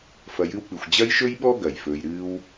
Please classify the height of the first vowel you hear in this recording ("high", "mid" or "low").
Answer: low